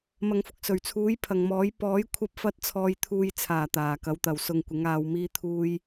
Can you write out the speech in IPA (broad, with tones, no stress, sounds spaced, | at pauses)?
m ɐ˨ ŋ f ʊ˨ k̚ s ɵ˨˩ ɥ t͡sʰ uː˨˥ j pʰ ɐ˨ ŋ m ɔː˨˥ j p ɔː˨˥ j kʷʰ ɐ˧ p̚ f ɐ˨˥ t̚ t͡sʰ ɔː˨ j t̪ʰ uː˨ j t͡sʰ aː˨˩ t̪ aː˨˩ k ɐ˨˧ w t̪ ɐ˨ w s ʊ˨ ŋ kʷ ɪ˨˥ ŋ aː˧ w m iː˧ t̪ʰ uː˧ j